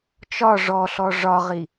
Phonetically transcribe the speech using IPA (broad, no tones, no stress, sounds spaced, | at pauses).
t͡ʃ ɒ ʐ ɔ ɬ ɔ ʐ ɒ ʁ i